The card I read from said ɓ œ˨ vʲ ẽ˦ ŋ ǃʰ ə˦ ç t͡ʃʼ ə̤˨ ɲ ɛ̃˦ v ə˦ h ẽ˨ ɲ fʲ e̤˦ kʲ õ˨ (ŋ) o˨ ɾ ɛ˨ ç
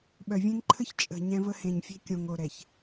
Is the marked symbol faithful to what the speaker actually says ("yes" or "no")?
yes